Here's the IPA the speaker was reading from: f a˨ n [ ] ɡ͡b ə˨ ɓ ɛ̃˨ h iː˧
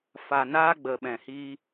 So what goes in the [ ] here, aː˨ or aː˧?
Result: aː˧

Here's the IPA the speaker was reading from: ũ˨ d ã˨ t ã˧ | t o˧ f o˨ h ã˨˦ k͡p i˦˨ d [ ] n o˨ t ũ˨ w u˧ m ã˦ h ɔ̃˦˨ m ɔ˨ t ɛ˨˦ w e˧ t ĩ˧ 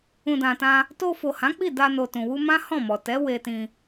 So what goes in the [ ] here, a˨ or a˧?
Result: a˧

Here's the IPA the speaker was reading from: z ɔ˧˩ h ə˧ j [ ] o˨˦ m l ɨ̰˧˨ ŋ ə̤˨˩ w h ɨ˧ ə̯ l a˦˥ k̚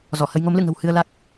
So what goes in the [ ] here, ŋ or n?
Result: ŋ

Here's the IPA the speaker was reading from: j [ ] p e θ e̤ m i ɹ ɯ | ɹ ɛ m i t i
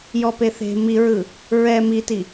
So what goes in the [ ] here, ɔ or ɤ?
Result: ɔ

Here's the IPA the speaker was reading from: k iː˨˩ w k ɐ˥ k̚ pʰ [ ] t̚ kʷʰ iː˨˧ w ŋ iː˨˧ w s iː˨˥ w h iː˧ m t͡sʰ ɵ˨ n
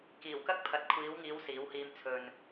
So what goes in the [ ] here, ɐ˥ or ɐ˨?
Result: ɐ˨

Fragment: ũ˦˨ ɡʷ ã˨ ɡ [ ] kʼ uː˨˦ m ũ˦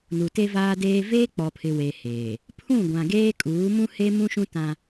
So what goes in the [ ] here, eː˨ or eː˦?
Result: eː˦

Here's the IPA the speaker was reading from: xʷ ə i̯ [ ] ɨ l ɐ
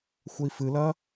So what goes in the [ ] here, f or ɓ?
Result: f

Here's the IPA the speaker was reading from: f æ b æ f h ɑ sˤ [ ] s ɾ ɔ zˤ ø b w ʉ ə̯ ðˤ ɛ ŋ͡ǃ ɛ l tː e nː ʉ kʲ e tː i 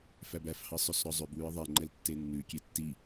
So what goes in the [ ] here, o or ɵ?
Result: ɵ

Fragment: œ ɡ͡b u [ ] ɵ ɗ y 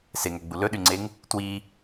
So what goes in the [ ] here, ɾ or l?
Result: l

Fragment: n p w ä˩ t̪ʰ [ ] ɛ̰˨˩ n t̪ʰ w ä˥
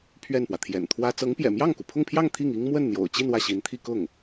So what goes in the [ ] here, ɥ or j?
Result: j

